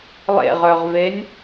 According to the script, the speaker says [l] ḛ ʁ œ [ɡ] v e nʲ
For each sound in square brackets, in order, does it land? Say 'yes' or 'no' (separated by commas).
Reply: no, no